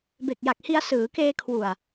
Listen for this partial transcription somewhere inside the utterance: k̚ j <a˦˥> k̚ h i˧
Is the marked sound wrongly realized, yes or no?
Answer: yes